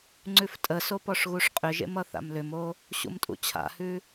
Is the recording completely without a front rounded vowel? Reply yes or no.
no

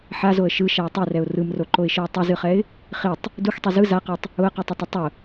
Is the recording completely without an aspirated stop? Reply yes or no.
yes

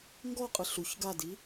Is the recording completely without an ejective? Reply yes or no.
no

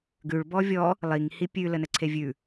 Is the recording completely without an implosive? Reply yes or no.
yes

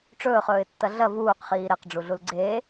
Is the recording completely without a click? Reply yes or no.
no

